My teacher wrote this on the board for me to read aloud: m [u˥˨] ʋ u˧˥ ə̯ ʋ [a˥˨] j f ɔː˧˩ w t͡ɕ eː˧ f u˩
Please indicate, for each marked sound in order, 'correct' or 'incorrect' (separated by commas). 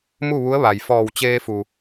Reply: correct, incorrect